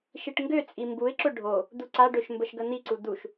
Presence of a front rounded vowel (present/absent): present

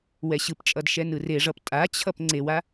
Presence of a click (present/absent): present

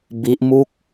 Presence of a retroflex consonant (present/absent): absent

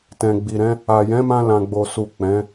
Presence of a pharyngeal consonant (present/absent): absent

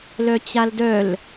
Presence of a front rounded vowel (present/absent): present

